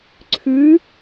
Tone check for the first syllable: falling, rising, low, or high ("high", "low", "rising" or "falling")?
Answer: rising